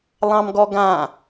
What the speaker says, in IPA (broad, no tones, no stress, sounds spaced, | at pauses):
lˠ ɑ̃ m ɡ ɔ ɡ ã